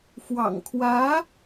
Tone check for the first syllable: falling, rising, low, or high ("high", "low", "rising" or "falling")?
low